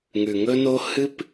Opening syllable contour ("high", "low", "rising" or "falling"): low